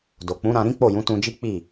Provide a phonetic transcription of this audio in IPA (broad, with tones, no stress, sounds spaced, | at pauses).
d o˨ k͡p ũ˨˦ ɾ ã˧ ɾ ĩ˦ k͡p o˦˨ j ũ˨˦ t ũ˧ d͡ʒ i˦ k͡p i˦˨